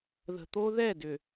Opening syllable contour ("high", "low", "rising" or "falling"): low